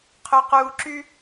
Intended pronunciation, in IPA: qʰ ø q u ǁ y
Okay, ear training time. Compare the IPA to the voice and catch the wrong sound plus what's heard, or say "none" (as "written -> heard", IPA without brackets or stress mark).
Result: none